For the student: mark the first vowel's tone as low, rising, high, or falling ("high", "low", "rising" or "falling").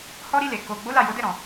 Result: high